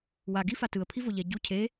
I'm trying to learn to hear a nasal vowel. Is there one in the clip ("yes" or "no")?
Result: no